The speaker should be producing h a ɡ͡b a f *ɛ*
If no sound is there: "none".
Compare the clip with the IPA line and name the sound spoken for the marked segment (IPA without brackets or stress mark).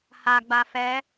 ɛ